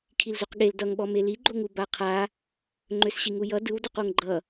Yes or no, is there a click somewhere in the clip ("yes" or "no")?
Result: yes